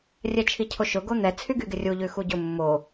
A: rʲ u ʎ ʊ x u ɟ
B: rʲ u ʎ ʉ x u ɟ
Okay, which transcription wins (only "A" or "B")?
B